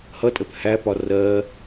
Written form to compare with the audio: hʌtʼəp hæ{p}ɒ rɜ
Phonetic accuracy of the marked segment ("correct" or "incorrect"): correct